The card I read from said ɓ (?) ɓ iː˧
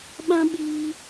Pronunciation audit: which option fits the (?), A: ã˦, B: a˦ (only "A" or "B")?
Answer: A